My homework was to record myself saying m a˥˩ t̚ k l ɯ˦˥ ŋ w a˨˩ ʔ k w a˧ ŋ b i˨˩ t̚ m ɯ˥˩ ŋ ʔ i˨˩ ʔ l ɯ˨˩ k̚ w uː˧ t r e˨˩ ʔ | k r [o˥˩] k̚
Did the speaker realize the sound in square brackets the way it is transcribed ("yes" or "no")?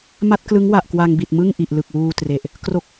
yes